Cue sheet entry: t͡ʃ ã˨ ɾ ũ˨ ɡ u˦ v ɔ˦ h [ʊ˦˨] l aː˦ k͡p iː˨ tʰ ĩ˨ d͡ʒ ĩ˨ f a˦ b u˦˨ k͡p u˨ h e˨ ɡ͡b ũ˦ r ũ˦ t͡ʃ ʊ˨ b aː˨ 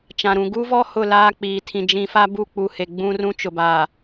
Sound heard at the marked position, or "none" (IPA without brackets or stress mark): ʊ˦˨